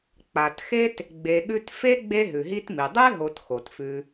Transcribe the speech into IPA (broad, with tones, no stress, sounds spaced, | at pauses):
k͡p a˨ t x e˥ t | ɡ͡b e˨ ɠ ʉ˦ t f e˥ ɡ͡b e˦ ɦ ʉ˩ ɦ i˦ t m i˩ dˤ e˥ ɦ o˨ t x o˩ t f ʉ˨